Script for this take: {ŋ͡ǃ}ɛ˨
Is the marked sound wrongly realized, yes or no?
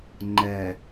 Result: no